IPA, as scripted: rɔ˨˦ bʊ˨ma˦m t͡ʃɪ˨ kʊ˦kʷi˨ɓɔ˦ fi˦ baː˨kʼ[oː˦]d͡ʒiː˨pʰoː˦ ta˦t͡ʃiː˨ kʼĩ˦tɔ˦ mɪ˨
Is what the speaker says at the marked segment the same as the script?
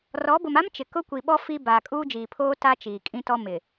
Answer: no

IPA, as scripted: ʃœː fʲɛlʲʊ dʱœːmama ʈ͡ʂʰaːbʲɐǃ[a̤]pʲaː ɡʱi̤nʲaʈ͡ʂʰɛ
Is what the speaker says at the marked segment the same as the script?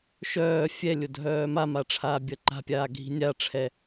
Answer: yes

